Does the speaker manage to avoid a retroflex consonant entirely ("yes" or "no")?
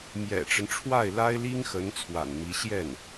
no